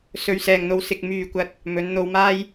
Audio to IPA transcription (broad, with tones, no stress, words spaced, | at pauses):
sɵ˨ɥsɛː˨ŋn̪o˧w sɪ˧k̚ myː˨kʷɐ˧t̚ | mɵ˨˥n n̪o˧wmaː˥j